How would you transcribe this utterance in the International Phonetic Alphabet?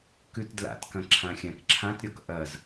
k ʉ t d l a̰ t k ɐ̃ ǁʰ ã xʲ ã k ǁʰ ã t ɾʲ ɔ k ʔ ɐ z

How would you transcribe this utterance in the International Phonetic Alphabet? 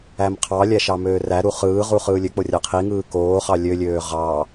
æ m qʰ ɑ lʲ æ ʃ ɑ m øː r æ ɾ u χ ɯː ʁ u χ ɯː lʲ ø k͡p o rʲ ɑ qʰ i ŋ ɯː k oː χ ɑ lʲ ø lʲ øː ʁ ɑ

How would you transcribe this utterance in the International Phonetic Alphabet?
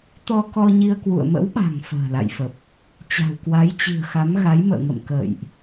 t̪ ɔ˧ k ɔ˧ ɲ i˧ ə̯ k w ṵ˧˨ ə̯ m ə̰˧˥ w ɓ a̤˨˩ ŋ f ə̤ː˨˩ l a̰˧˨ j f ə˨˩ p̚ | t͡ɕ a̤˨˩ w k w a˨˦ j t͡ɕ i̤˨˩ ə̯ x a˨˦ m ɣ a˨˦ j m ə̰ː˧˨ ŋ ə̰˧˨ m k ə̰ː˧˨ j ʔ

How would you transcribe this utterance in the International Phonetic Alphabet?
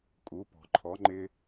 kʼ u˩˥ p ɔ̤˩ ǃʰ ɔ˩˥ ŋ͡ǃ ɪ˥

